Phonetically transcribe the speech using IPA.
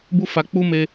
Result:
b u˦ f a˧ k͡p u˦ m e˧

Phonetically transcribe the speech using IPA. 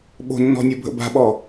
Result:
ɓ o̤ nː ɔ̤ nʲ o bʱ ə̰ b a̤ ɓ ɔ

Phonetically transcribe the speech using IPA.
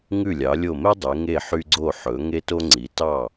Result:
ŋ ʉ˧˩ lʲ ɑ˩˧ lʲ o˧˩ m e˥ dˤ e˩˧ ŋ e˧˩ ħ y˧ ɡ͡ǀ o˧˩ ħ ɵ˩˧ ŋ e˧ t o˧ ŋ͡ǀ i˩˧ t ɑ˧˩

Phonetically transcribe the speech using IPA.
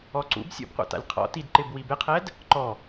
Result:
ɔ ǀ ṵ b sʲ ṵ b qʷ a̰ t a̰ lʲ qʰ ɔ̰ t i d ǃ ɪ b w i b ɪ qʰ ɛ d | ǃ ɔ

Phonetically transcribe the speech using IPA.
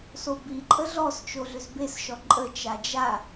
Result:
s o b i ǃʼ ə ɮ ɔ s t͡ʃ o ɮ ʏ z b e s ʃ ɔ ǃʼ ə t͡ʃ a d͡ʒ a

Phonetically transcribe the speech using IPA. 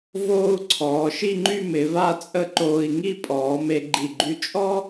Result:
v oː˥ u̯ ǀʰ ɔː˩˧ ʃ i˥˧ ŋ͡ǃ y˥˧ m ɪ˩˧ v a˥˧ t͡sʼ ə˥˧ ǃ oː˧ i̯ ŋ i˥˧ pʼ ɔː˩˧ m e˧ ɡ͡ǃ i˧˩ ɡ͡ǃ y˧ t͡ʃʼ ɔ˥

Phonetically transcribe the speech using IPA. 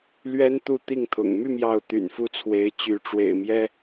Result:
l ɥ ɛ˥ n t̪ u˥˧ t̪ i˥˩ ŋ t̪ʰ ʊ̰˨˩ ŋ m y˥˧ m j ɑ˥˩ ʊ̯ t̪ y̰˨˩ n f u˥˩ t͡sʰ w e˧˥ ɪ̯ t͡ɕ y˧˥ ʈ͡ʂ w ḛ˨˩ ɪ̯ m j ɛ˥

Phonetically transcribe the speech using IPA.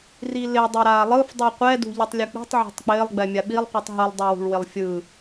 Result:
r i l ɪ dˤ ɛ ɾ aː lˠ ɯ f dˤ u qʷ ɛ d ṳ ʎ i tˤ lʲ u k͡p i̤ tˤ ʕ o̤ tˤ k͡p ɪː lˠ ɡ͡b ɛ mʲ a ɓ i lˠ qʷ i tˤ ɦ ɯ lˠ dˤ u w ṳ ɭ w ɪ lˠ fʲ ɯː

